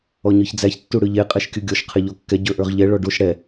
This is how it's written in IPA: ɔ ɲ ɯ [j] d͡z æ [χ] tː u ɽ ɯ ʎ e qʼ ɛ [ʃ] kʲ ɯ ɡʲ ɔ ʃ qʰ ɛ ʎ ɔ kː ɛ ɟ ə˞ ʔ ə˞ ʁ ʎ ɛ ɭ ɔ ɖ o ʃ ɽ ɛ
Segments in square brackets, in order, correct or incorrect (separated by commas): incorrect, incorrect, correct